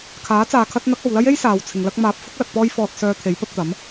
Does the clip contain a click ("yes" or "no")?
no